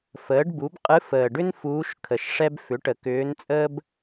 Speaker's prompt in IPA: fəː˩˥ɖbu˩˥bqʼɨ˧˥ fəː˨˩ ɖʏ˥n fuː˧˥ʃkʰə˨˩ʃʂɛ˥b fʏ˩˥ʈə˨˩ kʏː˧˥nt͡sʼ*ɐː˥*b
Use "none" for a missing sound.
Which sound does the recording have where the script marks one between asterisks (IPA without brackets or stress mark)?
əː˥